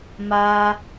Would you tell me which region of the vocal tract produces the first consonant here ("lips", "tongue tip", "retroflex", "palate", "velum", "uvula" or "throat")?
lips